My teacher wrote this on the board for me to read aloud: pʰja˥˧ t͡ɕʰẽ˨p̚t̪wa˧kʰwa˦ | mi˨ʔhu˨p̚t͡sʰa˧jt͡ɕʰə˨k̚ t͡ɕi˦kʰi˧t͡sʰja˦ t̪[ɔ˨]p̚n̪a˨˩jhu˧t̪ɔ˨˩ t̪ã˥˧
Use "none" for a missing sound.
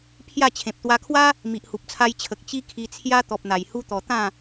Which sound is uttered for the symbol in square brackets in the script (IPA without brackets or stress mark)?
ɔ˨